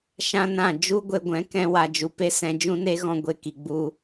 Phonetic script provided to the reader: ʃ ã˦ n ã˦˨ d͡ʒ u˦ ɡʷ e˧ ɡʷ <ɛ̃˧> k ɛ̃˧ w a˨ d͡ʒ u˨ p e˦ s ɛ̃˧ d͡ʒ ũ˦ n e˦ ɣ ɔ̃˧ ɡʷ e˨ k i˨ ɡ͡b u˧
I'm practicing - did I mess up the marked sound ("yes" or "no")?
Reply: yes